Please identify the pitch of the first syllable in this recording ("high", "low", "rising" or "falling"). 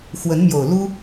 rising